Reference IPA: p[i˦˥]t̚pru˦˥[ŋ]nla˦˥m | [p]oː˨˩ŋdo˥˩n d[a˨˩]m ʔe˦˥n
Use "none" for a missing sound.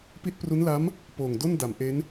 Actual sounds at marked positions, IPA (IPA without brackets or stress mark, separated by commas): i˦˥, none, p, a˩˦